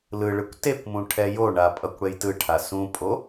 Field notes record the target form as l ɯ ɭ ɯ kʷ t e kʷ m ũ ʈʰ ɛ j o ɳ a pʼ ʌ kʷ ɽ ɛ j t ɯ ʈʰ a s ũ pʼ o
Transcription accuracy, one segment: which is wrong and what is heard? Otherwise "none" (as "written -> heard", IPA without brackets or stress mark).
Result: none